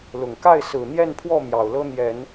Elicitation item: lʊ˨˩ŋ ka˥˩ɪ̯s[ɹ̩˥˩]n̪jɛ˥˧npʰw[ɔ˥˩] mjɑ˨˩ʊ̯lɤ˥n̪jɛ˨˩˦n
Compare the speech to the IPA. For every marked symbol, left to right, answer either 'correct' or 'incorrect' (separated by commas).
incorrect, correct